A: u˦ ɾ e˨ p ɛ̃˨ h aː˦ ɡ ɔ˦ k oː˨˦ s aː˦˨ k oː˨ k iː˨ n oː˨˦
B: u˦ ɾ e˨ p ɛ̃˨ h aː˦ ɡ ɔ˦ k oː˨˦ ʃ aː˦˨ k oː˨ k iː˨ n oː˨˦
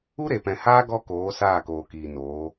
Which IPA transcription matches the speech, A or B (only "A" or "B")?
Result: A